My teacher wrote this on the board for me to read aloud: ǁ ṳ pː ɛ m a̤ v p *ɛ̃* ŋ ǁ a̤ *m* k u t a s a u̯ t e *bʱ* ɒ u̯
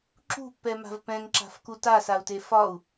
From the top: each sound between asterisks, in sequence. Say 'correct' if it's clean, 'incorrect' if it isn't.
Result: correct, incorrect, incorrect

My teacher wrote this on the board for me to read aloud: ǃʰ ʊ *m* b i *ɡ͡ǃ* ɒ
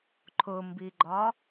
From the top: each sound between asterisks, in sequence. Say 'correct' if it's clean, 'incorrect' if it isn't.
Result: correct, correct

